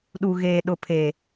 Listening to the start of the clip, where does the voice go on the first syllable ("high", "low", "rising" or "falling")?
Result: low